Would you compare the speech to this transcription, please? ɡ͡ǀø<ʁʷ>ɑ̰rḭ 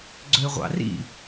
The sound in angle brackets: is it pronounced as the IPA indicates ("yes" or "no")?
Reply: yes